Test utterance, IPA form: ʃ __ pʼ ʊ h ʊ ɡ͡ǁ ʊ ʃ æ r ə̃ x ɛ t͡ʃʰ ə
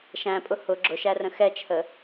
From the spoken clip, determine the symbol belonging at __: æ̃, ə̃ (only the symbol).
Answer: æ̃